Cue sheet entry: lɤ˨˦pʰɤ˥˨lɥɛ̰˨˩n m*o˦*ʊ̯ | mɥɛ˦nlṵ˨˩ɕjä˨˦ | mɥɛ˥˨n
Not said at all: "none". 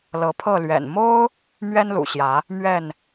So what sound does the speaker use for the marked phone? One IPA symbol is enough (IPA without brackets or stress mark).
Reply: o˦